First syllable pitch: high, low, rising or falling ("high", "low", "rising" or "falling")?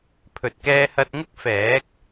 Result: low